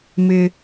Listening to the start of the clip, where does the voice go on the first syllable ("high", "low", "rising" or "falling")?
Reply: high